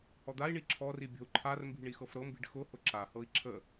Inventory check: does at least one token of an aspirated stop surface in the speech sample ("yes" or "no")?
yes